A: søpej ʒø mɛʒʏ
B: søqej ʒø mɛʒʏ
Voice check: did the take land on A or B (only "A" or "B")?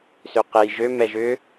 B